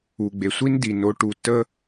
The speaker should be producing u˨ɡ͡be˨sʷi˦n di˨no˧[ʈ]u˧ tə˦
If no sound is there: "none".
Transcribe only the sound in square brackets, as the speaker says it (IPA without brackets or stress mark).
ʈ